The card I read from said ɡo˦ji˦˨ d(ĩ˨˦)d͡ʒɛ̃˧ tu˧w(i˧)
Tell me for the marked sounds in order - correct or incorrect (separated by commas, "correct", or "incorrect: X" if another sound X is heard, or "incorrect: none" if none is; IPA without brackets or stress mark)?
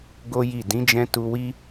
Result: correct, incorrect: i˦